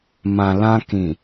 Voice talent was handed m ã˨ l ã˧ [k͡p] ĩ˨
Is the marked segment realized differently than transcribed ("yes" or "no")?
yes